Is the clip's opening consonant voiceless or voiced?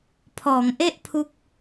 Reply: voiceless